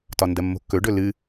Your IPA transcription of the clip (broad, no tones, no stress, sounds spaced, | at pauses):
t ɒ n d ɜ mː o̤ kː ɵ ɖ ɵ l ɨ